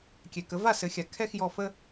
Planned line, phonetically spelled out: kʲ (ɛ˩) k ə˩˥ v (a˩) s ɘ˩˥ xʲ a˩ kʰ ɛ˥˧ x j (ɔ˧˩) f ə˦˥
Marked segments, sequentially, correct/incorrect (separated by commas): correct, incorrect, correct